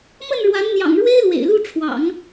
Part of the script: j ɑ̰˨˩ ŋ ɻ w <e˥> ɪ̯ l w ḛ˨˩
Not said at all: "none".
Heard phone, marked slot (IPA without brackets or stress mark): e˥